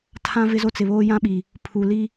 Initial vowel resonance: nasal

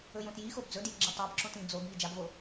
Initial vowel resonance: oral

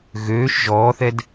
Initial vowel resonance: oral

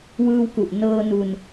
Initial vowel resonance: oral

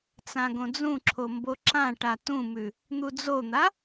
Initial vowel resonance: nasal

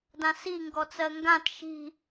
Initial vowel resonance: nasal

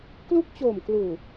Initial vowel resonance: oral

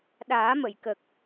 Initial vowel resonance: oral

